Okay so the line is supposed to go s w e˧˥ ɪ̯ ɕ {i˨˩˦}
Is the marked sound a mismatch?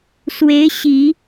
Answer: no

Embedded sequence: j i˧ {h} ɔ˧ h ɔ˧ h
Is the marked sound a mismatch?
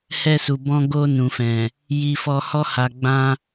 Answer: yes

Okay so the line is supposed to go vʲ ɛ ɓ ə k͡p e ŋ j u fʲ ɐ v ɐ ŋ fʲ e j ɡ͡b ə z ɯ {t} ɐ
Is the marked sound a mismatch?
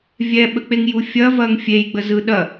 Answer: yes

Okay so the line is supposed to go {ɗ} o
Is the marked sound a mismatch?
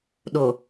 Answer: no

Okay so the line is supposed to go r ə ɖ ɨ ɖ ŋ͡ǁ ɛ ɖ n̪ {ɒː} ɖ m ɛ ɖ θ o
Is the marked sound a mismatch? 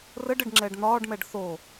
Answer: no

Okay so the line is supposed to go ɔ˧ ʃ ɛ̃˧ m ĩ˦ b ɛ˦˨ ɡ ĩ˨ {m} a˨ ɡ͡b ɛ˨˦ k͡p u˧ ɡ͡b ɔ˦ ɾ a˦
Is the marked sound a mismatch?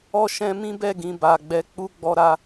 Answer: yes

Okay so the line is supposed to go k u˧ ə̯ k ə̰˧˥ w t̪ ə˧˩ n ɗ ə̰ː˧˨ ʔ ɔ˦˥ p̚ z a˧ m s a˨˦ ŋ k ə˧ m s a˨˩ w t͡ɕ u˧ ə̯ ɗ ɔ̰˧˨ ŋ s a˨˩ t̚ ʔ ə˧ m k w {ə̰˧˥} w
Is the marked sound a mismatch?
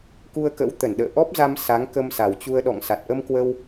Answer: yes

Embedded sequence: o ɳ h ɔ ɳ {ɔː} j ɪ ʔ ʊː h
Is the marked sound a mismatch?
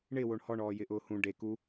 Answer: no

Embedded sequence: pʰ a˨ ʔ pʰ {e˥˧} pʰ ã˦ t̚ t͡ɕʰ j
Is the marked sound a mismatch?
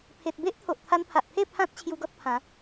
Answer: no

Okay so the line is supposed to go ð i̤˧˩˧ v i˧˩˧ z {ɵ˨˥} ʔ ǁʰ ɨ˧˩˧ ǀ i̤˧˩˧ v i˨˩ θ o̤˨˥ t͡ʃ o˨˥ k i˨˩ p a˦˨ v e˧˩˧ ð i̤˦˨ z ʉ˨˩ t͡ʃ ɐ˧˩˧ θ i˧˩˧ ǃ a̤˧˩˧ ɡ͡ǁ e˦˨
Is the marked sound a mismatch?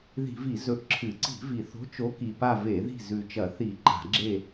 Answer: no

